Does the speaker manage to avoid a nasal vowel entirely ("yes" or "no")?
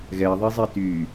yes